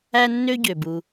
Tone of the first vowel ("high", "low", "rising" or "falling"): high